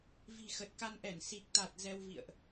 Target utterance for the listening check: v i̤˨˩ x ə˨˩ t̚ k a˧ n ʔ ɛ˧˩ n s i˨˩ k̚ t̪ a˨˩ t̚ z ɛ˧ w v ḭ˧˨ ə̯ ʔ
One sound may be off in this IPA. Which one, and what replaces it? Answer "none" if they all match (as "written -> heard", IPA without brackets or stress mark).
none